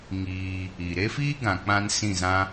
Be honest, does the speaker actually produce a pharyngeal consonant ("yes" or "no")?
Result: no